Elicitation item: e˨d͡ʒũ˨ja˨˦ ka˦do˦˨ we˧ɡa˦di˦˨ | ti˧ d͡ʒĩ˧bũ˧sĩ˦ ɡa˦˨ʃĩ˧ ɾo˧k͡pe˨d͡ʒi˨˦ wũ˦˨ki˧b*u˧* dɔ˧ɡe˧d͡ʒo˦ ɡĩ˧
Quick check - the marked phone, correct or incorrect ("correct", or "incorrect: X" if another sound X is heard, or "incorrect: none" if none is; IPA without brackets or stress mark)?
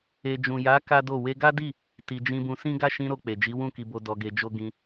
incorrect: o˧